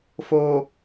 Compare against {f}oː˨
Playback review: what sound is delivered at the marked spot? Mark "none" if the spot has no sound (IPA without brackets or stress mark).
f